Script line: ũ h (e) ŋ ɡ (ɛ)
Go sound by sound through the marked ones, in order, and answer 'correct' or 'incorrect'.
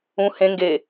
incorrect, incorrect

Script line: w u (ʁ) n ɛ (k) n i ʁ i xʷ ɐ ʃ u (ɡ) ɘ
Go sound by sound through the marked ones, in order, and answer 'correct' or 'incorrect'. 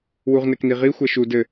correct, correct, incorrect

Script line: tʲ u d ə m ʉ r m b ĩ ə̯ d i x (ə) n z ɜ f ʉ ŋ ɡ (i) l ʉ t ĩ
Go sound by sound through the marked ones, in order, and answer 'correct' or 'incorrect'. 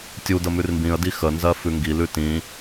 correct, correct

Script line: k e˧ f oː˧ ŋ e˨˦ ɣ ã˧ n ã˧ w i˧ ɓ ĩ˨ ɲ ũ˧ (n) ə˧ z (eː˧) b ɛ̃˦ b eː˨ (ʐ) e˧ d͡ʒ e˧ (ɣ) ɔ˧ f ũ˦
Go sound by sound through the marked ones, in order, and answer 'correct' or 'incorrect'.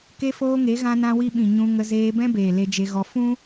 incorrect, correct, incorrect, correct

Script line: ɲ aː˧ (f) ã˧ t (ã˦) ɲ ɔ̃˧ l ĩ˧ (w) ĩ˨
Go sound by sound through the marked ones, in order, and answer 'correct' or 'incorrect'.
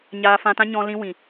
correct, correct, correct

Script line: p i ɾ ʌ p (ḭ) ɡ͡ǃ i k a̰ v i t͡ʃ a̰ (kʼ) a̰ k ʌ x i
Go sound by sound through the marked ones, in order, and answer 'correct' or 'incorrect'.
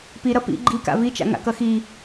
correct, incorrect

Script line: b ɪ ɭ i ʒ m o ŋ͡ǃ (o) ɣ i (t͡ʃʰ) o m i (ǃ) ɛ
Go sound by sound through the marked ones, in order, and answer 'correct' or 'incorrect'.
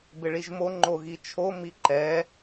correct, correct, correct

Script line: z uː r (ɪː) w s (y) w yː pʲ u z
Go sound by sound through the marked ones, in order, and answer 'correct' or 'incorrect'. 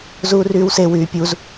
incorrect, incorrect

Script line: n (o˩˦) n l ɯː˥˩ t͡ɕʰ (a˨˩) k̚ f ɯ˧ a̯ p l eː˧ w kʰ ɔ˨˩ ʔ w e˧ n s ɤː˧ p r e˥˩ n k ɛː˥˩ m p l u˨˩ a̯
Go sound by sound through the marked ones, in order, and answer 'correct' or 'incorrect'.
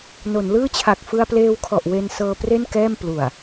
correct, correct

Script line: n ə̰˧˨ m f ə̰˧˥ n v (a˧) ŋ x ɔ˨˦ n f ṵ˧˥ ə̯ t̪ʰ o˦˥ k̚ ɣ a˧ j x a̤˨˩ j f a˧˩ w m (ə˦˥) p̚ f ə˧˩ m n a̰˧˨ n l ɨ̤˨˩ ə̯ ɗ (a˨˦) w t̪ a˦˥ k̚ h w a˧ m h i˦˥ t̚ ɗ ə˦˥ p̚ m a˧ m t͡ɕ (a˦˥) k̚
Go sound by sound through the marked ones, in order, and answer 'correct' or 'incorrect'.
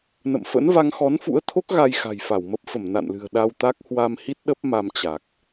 correct, correct, incorrect, incorrect

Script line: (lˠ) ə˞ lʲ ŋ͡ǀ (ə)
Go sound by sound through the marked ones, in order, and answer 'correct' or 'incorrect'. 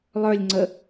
correct, correct

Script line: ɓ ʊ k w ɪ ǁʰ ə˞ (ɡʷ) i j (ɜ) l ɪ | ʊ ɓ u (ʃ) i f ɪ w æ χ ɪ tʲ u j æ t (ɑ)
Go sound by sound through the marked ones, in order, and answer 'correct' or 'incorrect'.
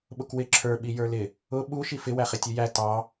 incorrect, incorrect, correct, correct

